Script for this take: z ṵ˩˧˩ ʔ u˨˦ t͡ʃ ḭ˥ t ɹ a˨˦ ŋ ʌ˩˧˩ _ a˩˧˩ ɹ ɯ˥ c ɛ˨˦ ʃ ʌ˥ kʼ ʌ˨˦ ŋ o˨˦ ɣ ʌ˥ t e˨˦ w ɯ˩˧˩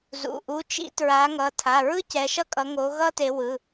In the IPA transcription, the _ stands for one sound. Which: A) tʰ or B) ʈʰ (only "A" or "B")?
A